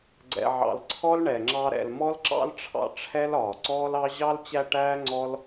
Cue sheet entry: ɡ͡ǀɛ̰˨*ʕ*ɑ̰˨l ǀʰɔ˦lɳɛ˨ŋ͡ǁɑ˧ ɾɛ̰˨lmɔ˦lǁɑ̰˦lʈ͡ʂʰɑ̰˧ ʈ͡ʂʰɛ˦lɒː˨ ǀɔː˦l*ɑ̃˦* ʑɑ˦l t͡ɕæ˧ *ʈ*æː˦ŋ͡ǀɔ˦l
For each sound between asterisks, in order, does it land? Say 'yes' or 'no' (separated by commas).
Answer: yes, no, yes